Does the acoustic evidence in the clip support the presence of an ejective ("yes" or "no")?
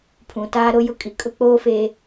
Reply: yes